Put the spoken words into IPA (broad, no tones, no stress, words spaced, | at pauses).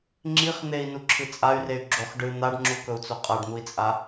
ŋ͡ǁiχ n̪ei̯nuǁʰɨ t͡sʼay̯rey̯ ɡ͡ǁoχ ɖɨ n̪aɖŋ͡ǁukɵu̯t͡so qʼaɖn̪ui̯t͡sʼa